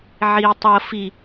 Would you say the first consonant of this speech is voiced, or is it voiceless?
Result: voiced